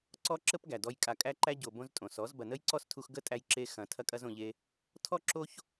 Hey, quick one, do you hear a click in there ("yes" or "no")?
yes